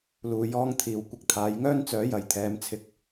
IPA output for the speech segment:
l uː˨ j ɔː˥ ŋ t̪ʰ iː˨ w kʷ ɪ˧ k̚ t̪ʰ aː˨˥ j ŋ œː˥ n t͡s œː˨˥ j ɐ˨˥ j t̪ʰ ɛː˨˧ m t͡sʰ ɪ˧ k̚

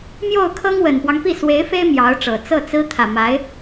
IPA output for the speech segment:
m j o˥˩ ʊ̯ kʰ ɤ˥ ŋ w ə˨˩ n p w ɑ˦ ŋ p i˥˩ s w e˧˥ ɪ̯ f e˥ ɪ̯ m j ɑ˧˥ ʊ̯ ʈ͡ʂ ɤ˨˩ t͡s ɤ˥˩ t͡s ɹ̩˥ t̪ʰ ä˨˩ m a˧˥ ɪ̯

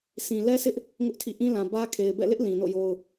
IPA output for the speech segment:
sʰ ĩ˨ l ɛ˦ sʰ ɪ˦ ʔ | ŋ ʊ˦ ʔ tʰ ḭ˦˨ ʔ ĩ˦ l ã˨ b ä˦ kʰ e˨ ɪ̯ b ɛ̰˦˨ l ɪ˦ ʔ l ĩ˨ n o̰˦˨ j o˦ ʊ̯

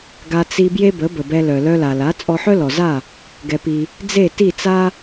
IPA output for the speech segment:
ɡ a˧ t͡s i˧ b j e˥ b ə˩˥ b ə˩ b ɛ˧ l œ˩ l œ˧ l a˩ l a˩˥ t͡sʼ ɔ˧ ħ œ˥ l ɔ˩ z a˥˩ | ɡ ɛ˩ p i˩ | d͡z e˥˩ t i˥˩ t͡s a˥

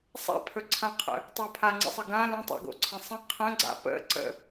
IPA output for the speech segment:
sˤ a̰ pʰ ɵ ǀʰ ã qʰ ə̰ | tˤ ɵ pʰ a ŋ͡ǀ ə̰ sˤ ə ɡ ã l ə̃ tˤ a̰ ɡ o̰ ǀʰ ə̃ sˤ ə̃ qʰ ə̃ ɡ͡ǀ a̰ p ə̰ ǀ ə̰

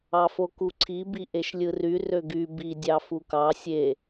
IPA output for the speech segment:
ɑ f o k u ǀʰ i b i ʔ e ʃ lʲ ɯ r y r ø ɡ y b i dʲ ɑ f u k ɑ sʲ e

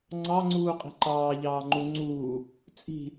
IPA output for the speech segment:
ŋ͡ǀ ɑ ŋ͡ǀ uː qʼ i̤ ǃ ɑː ʎ ɑː ŋ͡ǃ u ŋ͡ǀ uː | t͡sʼ i̤

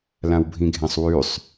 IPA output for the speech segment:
l ã w bʱ ĩ ɡʱ ẽ sˤ w ʉ sˤ

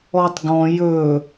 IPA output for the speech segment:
ɔ tˤ ɡ ɔ̃ j ɵ

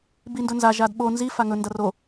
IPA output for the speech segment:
b i n d ɵ n z a ʒ a d ɓ o n z i f a ŋ ɵ n d ɐ r o

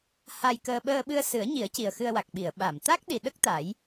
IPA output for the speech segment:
h a˧ j k əː˧ ɓ əː˧ ɓ ɨ˧ ə̯ s ɨ˨˩˦ ə̯ ɲ i˨˩˦ ə̯ c i˨˩ ə̯ x ɨ˧ ə̯ w a˨˩ k̚ ɓ i˨˩˨ ə̯ ɓ a˨˩˨ m t̪ a˦˥ k̚ ɗ i˨˩ ɗ ə˦˥ k̚ t̪ a˨˩˦ j

